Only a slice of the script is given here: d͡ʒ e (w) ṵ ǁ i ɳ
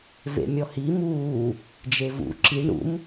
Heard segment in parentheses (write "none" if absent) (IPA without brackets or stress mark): v